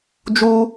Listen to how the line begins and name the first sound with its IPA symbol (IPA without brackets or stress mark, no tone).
d͡ʒ